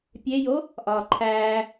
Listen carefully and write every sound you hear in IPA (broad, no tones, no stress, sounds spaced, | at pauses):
pʲ e j o | ʔ ɒː ǃʰ æː